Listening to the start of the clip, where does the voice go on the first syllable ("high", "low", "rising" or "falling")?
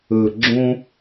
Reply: low